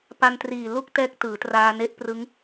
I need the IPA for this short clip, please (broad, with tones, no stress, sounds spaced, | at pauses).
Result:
p a˧ n t r iː˨˩ l u˥˩ k̚ t ɛː˦˥ k̚ t ɯː˩˦ t r aː˧ n e˦˥ ʔ p r ɯ˦˥ ŋ